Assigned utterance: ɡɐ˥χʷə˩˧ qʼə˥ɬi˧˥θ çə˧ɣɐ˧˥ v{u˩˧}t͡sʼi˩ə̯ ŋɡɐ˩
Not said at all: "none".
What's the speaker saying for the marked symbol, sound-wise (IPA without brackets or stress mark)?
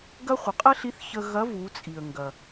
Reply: u˩˧